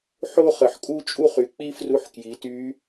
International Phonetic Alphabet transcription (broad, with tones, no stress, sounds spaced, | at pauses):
ħ o˧ χ ə˩ ħ kʼ u˧ t͡ʃʼ u˧ χ y˩ k͡p i˥ f r u˧ ħ k j i˩˧ t y˧˥